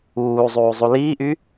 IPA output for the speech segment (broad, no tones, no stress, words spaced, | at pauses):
uːzˤuː zˤuliːʔy